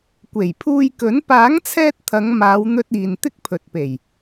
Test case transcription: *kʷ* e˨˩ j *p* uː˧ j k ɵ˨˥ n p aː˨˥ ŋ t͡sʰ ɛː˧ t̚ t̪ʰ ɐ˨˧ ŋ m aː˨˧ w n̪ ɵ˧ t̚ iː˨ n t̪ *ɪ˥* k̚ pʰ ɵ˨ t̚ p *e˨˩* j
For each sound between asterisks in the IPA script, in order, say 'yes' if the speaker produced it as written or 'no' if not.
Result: yes, no, yes, yes

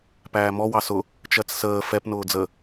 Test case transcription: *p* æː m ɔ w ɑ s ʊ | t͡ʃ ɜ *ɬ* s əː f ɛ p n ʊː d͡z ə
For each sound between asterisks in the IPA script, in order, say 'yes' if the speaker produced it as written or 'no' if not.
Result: yes, no

